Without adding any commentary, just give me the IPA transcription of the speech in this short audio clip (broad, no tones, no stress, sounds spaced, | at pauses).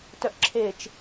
t œ ʔ ǁʰ e t͡ʃ